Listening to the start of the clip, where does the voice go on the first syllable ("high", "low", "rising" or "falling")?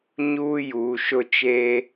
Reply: high